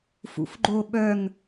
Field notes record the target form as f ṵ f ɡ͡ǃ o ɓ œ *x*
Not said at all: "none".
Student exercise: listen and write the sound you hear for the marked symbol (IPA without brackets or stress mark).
ŋ